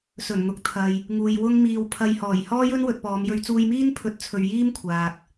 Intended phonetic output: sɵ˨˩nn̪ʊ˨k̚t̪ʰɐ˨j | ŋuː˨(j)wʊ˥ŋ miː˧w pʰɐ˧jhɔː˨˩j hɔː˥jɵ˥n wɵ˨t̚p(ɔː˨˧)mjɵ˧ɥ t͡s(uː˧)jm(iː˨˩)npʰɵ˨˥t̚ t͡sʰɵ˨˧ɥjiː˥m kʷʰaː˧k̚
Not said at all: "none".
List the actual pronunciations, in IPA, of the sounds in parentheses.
j, ɔː˨˧, uː˧, iː˥

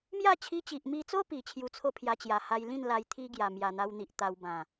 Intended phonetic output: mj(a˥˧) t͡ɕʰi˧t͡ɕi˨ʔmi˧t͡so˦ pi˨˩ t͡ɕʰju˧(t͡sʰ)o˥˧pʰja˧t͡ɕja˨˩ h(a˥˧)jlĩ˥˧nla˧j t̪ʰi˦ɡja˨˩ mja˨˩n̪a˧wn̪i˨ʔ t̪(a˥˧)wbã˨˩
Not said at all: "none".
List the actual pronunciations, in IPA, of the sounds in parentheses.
a˥˧, t͡sʰ, a˧, a˧

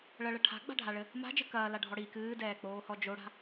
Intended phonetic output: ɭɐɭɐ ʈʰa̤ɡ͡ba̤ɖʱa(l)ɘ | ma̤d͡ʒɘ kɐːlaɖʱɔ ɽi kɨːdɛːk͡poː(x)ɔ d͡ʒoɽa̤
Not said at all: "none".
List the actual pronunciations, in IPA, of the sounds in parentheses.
ɭ, h

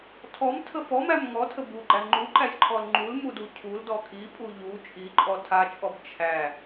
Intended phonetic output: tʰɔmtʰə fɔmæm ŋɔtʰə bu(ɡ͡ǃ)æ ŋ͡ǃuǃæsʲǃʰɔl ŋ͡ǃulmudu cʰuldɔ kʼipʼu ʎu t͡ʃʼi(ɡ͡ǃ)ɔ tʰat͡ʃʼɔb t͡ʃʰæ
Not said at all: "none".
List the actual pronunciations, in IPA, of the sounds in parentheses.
ɡ͡ǃ, ǃʼ

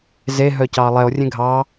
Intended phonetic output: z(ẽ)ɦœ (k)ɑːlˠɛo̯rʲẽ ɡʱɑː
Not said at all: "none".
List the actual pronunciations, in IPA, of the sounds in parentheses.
e, c

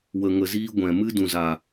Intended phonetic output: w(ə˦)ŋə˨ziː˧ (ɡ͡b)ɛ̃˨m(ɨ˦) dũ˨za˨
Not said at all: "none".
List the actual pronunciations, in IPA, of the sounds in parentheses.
ə˨, ɡʷ, ɨ˦

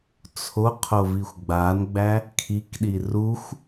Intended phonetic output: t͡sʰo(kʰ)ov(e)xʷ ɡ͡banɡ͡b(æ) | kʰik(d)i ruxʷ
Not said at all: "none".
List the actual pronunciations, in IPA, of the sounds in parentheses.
qʰ, i, æ, ɗ

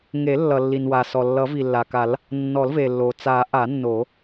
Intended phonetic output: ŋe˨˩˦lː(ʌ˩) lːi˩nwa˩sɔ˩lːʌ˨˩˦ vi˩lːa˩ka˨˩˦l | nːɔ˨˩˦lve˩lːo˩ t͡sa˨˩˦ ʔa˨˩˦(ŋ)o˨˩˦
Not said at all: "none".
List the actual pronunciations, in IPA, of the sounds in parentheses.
ʌ˩, nː

